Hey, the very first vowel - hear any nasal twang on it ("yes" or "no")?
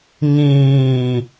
yes